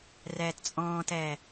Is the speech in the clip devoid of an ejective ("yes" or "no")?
no